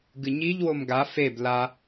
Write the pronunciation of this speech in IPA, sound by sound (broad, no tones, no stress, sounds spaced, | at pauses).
ɡ ɨ ɲ i ʎ w o m ɡ a f e b l a